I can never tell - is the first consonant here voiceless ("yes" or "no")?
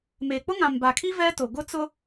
no